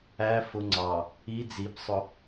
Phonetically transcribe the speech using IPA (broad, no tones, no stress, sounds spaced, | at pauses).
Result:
æ f ʊ ŋ͡ǀ ɑ | i d͡z i b sˤ ʊ